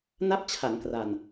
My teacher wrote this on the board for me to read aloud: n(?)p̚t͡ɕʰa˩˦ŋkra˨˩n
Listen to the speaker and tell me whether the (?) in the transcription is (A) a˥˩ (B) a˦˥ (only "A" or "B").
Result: A